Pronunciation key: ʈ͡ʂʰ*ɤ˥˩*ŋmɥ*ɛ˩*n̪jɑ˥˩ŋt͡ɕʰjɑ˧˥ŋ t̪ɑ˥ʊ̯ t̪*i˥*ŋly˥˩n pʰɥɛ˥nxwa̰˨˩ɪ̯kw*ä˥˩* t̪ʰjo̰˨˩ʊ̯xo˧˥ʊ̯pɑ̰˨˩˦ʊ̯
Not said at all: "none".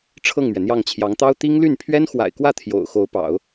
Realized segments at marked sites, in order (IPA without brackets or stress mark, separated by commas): ɤ˥˩, ɛ˩, i˥, ä˥˩